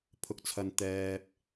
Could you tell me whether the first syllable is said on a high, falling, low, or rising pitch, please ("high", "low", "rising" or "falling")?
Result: low